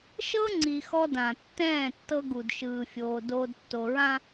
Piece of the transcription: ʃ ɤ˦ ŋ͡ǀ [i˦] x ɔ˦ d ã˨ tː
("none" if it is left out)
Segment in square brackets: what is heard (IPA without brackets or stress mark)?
i˨